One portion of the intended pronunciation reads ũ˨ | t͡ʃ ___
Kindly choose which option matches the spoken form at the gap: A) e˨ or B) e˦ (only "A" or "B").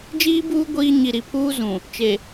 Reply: A